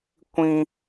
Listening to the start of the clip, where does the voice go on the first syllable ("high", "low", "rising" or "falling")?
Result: high